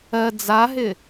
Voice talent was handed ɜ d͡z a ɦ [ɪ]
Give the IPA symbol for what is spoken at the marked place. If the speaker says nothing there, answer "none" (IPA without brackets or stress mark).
ɪ